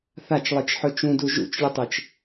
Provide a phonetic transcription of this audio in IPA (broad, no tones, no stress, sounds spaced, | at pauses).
θ a t͡ʃ lˠ i t͡ʃ ħ ɵ t͡ʃ ũ d u ʒ ṵ t͡ʃ lʲ ɵ tˤ e t͡ʃ